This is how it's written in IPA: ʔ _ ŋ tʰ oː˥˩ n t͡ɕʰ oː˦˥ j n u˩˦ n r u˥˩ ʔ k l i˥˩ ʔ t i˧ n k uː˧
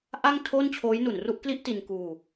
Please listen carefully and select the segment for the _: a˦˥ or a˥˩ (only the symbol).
a˥˩